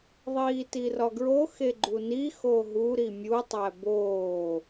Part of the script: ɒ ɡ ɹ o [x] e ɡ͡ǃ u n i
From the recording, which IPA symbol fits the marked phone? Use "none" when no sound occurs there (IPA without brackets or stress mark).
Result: x